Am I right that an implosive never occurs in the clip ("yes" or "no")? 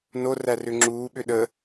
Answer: no